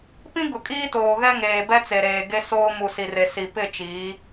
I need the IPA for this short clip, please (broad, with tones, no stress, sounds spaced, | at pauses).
p ĩ˦ ɡ ʊ˨ kʼ iː˦ t oː˨ ɣ ɛ˦ ŋ eː˨ b ɛ˦ t͡s e˨ ɾ eː˨ ɡ e˦ s oː˦ m u˨ s i˨ r e˨ s i˨ p ɪ˦˨ t͡ʃ iː˨˦